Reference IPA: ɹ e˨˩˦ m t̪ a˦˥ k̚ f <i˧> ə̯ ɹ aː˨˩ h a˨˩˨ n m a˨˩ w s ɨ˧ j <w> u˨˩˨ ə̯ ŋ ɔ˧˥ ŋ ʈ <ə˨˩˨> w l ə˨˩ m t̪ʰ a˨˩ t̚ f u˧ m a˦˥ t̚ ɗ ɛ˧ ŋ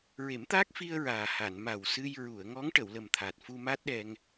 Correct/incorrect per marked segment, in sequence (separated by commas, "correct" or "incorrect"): correct, incorrect, correct